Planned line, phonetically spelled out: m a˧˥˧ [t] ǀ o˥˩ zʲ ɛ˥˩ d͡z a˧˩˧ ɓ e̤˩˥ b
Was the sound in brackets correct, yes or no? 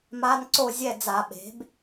no